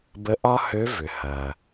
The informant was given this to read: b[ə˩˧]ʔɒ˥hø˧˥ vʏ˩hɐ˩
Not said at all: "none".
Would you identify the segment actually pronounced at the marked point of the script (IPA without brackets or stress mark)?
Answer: ə˧˥